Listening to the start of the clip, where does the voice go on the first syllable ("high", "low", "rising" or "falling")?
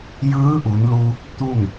rising